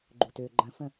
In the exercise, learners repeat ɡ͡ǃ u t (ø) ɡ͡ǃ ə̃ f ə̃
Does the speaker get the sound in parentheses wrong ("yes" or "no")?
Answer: no